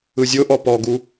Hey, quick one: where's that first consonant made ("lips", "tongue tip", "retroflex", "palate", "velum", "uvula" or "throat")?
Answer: tongue tip